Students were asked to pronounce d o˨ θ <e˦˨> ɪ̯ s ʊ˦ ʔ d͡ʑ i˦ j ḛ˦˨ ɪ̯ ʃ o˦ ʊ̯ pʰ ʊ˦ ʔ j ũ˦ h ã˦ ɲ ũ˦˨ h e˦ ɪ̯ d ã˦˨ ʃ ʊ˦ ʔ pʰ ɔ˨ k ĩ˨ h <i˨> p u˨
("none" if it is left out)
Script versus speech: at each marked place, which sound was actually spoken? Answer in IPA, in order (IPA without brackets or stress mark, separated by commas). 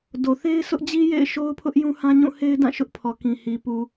e˦, i˨